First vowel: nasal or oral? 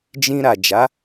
nasal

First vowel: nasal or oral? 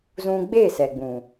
nasal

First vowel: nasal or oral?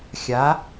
oral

